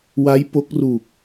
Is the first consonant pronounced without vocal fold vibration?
no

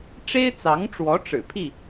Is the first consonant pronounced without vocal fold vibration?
yes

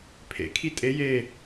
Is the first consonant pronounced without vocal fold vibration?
yes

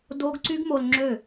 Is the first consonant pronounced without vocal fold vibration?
no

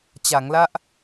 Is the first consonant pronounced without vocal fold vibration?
yes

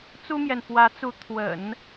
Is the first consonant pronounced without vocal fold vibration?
yes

